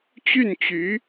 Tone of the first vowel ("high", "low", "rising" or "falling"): falling